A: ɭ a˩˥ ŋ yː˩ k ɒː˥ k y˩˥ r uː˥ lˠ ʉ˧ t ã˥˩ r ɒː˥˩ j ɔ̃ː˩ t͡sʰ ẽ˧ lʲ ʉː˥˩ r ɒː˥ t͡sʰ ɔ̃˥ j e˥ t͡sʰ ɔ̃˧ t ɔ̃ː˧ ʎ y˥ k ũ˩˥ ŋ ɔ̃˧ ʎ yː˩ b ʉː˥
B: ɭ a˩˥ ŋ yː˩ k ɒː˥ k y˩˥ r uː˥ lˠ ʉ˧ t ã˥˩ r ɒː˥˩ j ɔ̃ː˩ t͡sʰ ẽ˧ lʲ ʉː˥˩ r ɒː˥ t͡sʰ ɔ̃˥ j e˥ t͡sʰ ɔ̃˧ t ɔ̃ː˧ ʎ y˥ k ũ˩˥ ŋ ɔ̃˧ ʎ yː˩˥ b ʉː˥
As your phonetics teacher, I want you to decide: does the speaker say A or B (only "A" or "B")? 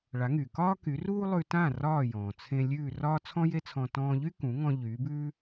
B